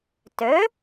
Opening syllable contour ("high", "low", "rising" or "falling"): rising